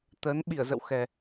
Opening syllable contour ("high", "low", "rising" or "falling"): rising